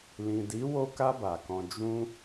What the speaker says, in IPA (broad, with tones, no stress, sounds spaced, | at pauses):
l ĩ˨ d i˨˦ w o˧ k a˧ b a˨ k ɔ̃˧ d͡ʒ ũ˦